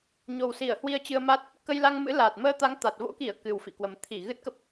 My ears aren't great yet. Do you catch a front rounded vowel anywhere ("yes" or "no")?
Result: no